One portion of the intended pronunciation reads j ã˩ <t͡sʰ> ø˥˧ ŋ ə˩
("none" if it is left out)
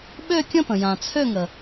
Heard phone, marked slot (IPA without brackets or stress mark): t͡sʰ